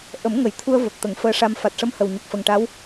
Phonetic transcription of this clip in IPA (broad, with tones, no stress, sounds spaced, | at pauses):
ʔ ə˨˩˦ m ŋ ə˨˩˨ j t̪ʰ u˧ ə̯ v ə˨˩ k̚ t̪ ə˨˩˦ ŋ f əː˧˥ ʂ a˧ m f a˨˩ t̚ ʂ ə˧ m h ə˨˩ w ɲ ə˨˩ k̚ f ə˨˩ ŋ ʈ a˧˥ w